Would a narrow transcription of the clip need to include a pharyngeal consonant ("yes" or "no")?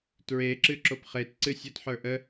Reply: yes